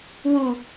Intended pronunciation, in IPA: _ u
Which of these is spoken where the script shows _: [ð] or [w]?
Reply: w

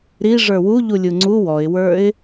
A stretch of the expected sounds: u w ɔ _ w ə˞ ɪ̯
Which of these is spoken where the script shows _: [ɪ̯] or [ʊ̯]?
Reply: ɪ̯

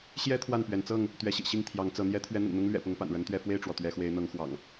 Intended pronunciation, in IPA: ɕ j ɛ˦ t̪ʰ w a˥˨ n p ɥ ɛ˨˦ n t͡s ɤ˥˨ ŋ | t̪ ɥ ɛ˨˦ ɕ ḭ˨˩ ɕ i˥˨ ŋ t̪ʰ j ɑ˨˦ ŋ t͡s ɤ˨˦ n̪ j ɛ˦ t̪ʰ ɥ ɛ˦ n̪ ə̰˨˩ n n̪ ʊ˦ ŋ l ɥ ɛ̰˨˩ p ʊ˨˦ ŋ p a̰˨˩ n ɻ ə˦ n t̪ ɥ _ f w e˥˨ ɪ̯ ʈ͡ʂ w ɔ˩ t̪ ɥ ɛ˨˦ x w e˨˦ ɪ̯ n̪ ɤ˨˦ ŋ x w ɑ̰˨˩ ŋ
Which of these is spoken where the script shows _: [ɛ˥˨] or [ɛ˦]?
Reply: ɛ˦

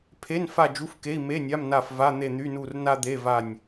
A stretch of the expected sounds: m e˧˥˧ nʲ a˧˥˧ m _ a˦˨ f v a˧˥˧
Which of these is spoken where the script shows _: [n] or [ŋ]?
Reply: n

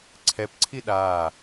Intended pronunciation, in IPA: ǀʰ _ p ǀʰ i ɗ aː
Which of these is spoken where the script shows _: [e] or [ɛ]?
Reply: ɛ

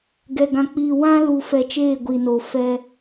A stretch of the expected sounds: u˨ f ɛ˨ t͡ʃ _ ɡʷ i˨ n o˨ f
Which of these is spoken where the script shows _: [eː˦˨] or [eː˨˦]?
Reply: eː˦˨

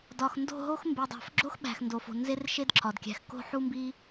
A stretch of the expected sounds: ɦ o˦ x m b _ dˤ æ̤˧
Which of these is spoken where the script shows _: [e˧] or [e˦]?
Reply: e˧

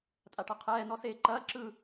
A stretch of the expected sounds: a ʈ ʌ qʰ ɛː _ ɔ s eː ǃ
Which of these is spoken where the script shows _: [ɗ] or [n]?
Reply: n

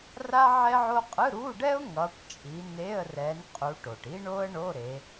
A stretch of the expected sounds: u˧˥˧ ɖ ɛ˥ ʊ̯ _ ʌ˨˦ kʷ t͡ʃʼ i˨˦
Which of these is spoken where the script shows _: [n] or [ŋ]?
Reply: ŋ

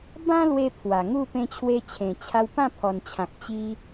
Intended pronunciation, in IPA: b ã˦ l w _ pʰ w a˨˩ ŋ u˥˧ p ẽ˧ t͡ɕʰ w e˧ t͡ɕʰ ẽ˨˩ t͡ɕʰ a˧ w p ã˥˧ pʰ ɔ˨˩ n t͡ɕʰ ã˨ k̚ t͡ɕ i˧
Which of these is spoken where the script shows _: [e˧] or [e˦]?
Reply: e˧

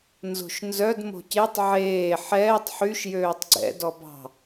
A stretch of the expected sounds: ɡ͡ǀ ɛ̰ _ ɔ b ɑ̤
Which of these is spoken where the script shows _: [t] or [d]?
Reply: d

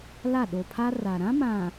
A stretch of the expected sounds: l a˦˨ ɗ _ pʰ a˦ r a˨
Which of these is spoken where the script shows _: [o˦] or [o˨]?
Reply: o˨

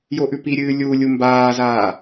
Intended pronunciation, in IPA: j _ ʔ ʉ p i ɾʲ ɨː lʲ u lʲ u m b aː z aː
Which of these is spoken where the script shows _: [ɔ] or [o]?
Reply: o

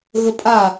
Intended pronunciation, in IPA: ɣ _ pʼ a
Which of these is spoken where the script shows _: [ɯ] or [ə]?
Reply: ə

